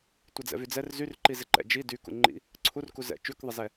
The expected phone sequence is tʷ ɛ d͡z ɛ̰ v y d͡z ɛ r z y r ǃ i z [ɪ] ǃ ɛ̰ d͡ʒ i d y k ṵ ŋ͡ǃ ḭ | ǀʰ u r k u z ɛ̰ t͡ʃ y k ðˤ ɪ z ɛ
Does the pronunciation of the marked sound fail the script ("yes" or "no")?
no